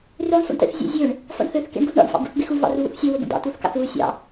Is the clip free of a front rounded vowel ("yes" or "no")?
no